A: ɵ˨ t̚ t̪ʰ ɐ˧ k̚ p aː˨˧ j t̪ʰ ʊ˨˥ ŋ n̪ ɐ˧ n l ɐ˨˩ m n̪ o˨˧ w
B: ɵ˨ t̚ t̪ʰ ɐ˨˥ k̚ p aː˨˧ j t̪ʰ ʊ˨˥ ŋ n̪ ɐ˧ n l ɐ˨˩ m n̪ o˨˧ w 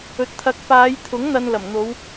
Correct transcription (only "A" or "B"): B